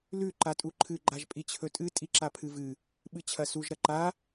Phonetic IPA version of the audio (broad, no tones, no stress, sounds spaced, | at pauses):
l ʉ ǃ a tʼ u ǃʰ ɨ ɡ͡ǃ a ʒ pʼ i t͡ɕʰ ɵ tʼ ɨ tʼ i ǁ a pʰ ɨ v ɨ | ɓ ɨ t͡ɕʰ ɐ s u ʒ ɾ ɐ ǃ a